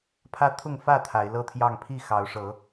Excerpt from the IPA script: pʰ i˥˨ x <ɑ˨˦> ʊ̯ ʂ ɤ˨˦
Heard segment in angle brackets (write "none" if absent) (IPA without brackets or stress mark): ɑ˨˦